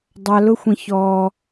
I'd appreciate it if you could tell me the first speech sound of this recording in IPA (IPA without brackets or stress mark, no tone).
dˤ